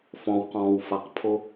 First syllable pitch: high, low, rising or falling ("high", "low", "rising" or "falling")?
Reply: low